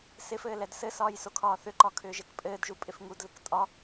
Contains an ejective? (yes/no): yes